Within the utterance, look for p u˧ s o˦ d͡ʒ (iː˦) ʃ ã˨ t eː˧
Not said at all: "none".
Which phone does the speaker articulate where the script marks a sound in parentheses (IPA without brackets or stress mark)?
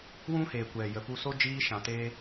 iː˧